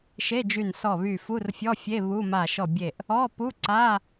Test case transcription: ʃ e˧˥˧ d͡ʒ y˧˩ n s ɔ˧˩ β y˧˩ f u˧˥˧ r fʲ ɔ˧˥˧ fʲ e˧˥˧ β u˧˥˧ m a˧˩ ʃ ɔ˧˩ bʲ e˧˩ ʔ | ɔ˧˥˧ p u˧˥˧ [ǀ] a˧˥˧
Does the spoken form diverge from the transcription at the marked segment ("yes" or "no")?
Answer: no